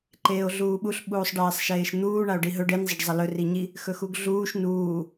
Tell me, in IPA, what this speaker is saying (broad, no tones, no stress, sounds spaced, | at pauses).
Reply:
ǃ eː o̯ ɮ uː ɓ u ɬ ɓ uː sˤ ɖ eː sˤ ʃ eː ʃ n̪ uː ɳ a o̯ ɖ i ɦ ɵ ɖ e n zˤ ə ɖ zˤ ə l ɵ r i ɲ i | x ɵ x u ɡ ɮ uː ʃ n uː